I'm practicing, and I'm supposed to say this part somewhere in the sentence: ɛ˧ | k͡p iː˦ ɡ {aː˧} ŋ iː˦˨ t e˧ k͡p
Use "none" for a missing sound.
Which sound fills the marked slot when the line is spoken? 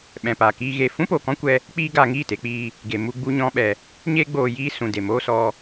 aː˧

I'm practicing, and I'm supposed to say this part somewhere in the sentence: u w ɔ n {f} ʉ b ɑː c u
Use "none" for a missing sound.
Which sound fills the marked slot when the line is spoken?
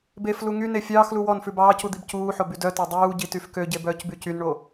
f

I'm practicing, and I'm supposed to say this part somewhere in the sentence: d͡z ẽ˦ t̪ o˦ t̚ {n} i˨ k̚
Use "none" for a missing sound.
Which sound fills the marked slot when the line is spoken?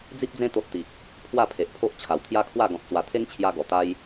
t̪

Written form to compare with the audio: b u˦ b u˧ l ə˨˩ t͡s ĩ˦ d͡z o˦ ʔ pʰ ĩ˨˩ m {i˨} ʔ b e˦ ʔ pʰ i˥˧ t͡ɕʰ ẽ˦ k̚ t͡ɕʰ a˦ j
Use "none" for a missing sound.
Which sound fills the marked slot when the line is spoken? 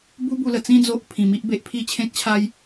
i˦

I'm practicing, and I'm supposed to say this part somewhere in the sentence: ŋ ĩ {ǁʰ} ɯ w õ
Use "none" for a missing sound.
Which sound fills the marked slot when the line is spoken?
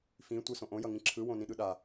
ǁʰ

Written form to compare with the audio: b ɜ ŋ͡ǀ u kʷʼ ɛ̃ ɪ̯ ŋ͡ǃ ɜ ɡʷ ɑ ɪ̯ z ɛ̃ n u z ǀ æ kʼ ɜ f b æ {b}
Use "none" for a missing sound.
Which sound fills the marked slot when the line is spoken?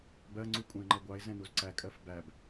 b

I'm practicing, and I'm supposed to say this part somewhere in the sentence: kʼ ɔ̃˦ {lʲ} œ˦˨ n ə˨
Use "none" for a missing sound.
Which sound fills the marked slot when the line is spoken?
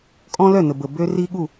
l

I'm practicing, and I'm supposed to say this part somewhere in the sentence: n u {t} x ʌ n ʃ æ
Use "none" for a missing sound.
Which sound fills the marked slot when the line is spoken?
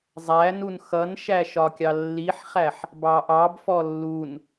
n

